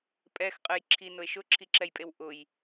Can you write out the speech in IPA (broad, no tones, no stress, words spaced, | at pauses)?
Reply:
pʼɛxqʼɨj ǁʰinʊe̯ ʃʊǁʰiǁɛjpʼew ʔʊj